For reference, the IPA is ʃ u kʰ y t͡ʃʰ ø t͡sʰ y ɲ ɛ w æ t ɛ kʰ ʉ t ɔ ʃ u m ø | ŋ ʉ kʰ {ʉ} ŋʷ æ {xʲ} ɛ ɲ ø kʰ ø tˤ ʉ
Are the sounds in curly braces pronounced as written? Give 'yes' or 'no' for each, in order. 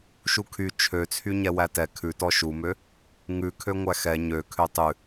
no, no

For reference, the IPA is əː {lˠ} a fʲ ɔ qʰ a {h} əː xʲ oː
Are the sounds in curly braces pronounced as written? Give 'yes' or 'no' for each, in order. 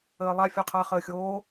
yes, no

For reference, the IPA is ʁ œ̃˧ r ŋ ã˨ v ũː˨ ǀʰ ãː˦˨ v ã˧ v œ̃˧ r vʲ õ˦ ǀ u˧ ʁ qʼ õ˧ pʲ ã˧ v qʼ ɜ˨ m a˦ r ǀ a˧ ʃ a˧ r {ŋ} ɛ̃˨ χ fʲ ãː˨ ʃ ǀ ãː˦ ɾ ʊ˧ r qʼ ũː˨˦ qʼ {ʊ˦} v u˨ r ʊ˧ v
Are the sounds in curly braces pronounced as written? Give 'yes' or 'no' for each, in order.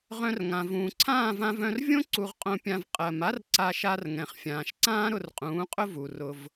yes, yes

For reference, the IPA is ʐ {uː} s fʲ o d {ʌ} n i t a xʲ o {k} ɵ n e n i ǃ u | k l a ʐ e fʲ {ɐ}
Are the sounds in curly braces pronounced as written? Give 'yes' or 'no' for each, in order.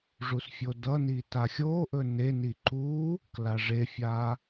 no, yes, no, no

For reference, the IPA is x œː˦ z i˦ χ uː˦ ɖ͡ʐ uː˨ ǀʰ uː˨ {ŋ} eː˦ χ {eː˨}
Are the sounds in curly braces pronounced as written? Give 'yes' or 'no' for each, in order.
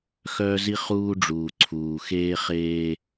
no, no

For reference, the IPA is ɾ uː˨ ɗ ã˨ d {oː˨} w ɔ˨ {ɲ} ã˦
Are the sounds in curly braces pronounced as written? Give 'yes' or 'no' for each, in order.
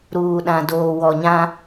yes, yes

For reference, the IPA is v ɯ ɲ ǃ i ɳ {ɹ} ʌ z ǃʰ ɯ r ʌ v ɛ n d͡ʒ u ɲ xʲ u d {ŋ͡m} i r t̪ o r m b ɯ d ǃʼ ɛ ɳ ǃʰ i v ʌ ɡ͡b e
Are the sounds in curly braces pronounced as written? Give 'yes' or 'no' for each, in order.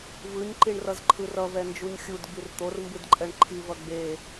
no, no

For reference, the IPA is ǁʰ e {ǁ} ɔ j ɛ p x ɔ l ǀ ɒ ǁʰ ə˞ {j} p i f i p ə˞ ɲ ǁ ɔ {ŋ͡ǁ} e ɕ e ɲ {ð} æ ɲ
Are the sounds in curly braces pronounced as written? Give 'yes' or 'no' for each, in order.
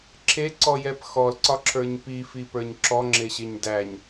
no, no, yes, no

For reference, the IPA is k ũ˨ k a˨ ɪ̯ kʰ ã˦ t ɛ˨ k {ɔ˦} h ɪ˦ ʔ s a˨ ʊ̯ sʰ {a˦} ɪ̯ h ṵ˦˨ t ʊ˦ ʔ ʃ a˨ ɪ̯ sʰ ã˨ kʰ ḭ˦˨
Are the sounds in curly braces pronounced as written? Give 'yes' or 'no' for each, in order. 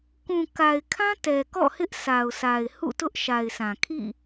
no, no

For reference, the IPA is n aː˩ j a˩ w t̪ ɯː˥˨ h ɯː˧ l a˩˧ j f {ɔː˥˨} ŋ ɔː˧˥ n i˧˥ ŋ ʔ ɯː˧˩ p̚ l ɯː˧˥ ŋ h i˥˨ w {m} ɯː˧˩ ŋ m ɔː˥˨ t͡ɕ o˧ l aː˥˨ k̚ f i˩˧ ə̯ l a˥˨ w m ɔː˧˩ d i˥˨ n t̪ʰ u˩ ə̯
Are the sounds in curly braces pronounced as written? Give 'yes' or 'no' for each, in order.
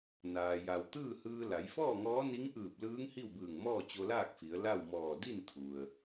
yes, no

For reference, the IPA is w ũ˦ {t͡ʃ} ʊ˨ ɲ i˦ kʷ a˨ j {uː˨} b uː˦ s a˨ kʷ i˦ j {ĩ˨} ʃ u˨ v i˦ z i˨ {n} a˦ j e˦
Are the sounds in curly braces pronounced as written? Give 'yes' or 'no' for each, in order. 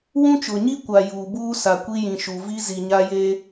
yes, yes, yes, no

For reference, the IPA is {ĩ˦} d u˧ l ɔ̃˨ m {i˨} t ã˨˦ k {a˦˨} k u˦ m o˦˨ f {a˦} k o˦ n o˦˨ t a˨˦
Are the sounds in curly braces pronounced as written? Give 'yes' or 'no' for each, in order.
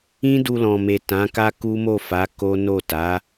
yes, no, no, no

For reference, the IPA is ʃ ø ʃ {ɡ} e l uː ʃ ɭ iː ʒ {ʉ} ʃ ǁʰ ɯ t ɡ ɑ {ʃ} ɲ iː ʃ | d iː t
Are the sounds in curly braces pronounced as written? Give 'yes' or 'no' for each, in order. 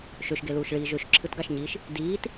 yes, no, yes

